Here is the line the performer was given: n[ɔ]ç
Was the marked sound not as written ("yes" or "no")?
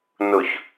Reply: yes